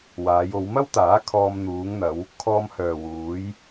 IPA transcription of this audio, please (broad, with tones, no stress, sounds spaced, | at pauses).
w aː˨˧ j o˨˧ w m ɐ˥ w t̪ aː˨˥ kʰ ɔː˧ m n̪ uː˨˧ ŋ n̪ ɐ˨˧ w | kʰ ɔː˧ m h œː˨ w uː˨˧ j